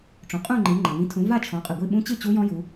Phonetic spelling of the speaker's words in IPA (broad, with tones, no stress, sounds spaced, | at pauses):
ʈ͡ʂ ũ˨ qʼ ũ˥˧ ŋ͡ǃ i˨˦ ŋ͡ǃ ɐ˨ ŋ ĩ˨˦ tʰ ũ˨˦ v a˥˧ t͡ʃʰ ɔ̃˨˦ qʼ ɨ˨ ɡʷ i˥˧ ɓ ũ˦˥ t͡ɕ ɨ˥˧ t͡ɕ u˦˥ j ɔ̃˦˥ j u˨˦